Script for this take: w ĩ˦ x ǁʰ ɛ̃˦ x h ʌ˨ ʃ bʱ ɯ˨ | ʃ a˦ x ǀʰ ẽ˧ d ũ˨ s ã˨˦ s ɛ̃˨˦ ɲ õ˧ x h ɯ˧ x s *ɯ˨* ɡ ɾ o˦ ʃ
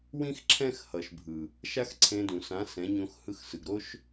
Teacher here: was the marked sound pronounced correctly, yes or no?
yes